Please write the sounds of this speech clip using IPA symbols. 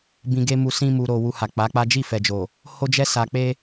bĩ˧ɡe˦mu˧ sĩ˦ mu˧ɾo˧ wu˧ha˨k͡pa˨˦k͡pa˦ d͡ʒi˦˨fɛ˨d͡ʒo˨ | ho˦d͡ʒɛ˦ sa˧k͡pe˦

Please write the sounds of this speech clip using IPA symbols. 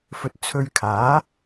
fɵ˧t̚t͡sʰɵ˧ɥkʰaː˨˥

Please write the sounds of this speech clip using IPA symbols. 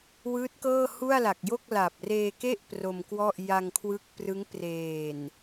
wɯː˦˥t̚kɤː˥˩hu˥˩a̯la˨˩k̚ jo˥˩k̚la˨˩p̚reː˧ke˥˩ʔ pro˧mkwɔ˥˩ʔ ja˧ŋkʰwɯ˦˥k̚prɯ˦˥ŋ preː˨˩n

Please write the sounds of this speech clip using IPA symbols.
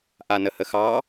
ʔanəhəxɑ

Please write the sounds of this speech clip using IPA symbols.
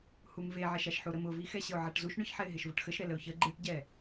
humveʕɛʃaʃ ħuɾəm ʊvixɛ ɕəʊ̯ʕaʈzuʃ ɳʊçħɛɪ̯ɦeʃ vʊʈxəʃɾɛ ləʊ̯çə ɡ͡ǃɨʈɟɛ

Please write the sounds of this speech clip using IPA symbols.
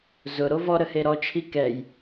zʊɾo vɔɾəhe ɾɔt͡ʃʰi kɛj

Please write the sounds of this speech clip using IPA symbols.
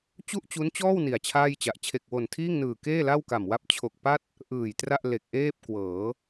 t͡ɕu˥˩ʔt͡ɕu˦˥nt͡ɕɔː˥˩w ni˨˩a̯t͡ɕʰaː˥˩jt͡ɕa˨˩ʔ t͡ɕʰe˨˩k̚wo˨˩ntʰiː˥˩ŋnɯː˨˩ keː˥˩la˥˩wka˨˩m wa˦˥p̚t͡ɕʰo˨˩k̚pa˥˩t̚ | ʔɯː˨˩jtra˥˩ʔ le˨˩k̚ʔeː˥˩p̚ kwɤː˩˦

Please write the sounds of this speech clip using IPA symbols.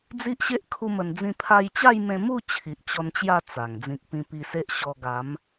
d͡zi˦ʔɕe˦ʔ kʰu˦mə˧nd͡zĩ˥˧ pʰa˧jt͡ɕa˥˧jmẽ˧mu˥˧ t͡ɕʰi˨ʔ t͡ɕɔ˧nt͡ɕja˥˧ t͡sa˨˩ŋ d͡zĩ˨k̚pĩ˧pi˧se˦ʔ ɕɔ˧ɡa˨˦m

